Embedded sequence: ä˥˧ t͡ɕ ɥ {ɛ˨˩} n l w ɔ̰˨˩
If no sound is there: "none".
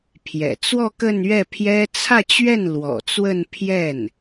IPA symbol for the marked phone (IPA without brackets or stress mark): ɛ˥˩